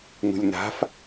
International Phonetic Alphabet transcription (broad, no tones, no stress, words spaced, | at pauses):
nṳlʲna̤f